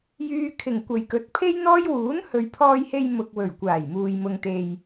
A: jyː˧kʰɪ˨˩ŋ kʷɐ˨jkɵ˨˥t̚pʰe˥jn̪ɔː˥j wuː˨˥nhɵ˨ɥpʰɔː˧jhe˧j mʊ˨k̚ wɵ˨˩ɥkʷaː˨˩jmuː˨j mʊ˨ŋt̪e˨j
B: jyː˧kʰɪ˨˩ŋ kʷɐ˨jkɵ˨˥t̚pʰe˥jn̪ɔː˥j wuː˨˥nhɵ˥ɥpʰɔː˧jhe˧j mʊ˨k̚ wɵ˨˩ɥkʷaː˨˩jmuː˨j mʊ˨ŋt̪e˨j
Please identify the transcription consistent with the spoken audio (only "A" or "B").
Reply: A